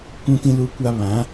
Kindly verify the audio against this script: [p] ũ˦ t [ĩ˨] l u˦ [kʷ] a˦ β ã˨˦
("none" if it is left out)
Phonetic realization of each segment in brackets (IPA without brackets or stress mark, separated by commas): kʷ, ĩ˦, kʷ